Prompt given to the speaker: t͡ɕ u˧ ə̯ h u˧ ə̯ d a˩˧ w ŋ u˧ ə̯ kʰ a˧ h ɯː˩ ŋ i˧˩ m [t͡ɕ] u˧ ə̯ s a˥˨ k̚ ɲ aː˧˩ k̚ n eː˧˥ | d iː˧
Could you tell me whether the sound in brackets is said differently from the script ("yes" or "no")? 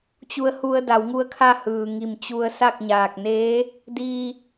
no